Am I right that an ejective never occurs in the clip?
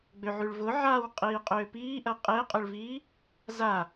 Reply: no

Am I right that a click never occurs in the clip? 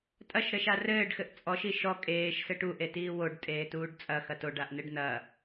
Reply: yes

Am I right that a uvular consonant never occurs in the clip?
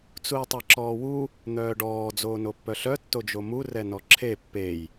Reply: yes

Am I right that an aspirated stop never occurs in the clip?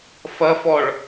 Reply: yes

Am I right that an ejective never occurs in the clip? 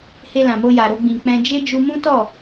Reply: yes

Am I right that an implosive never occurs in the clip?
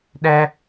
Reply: no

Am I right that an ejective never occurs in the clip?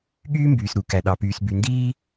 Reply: yes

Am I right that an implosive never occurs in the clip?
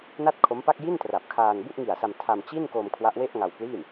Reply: yes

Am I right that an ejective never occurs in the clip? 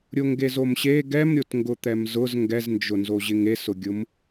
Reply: yes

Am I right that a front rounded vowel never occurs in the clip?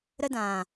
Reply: yes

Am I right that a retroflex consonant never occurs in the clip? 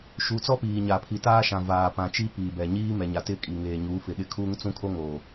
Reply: yes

